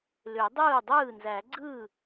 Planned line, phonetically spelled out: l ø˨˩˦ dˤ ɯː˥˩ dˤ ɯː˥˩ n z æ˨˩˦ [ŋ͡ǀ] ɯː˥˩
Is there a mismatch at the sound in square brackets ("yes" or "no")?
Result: yes